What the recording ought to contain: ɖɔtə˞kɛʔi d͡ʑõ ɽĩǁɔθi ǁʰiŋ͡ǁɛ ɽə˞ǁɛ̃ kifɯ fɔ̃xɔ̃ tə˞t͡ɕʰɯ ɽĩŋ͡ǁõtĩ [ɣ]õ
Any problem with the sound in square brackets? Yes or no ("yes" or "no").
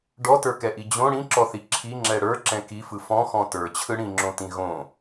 no